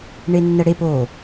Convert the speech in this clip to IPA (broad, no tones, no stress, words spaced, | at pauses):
ɳenːəɽep o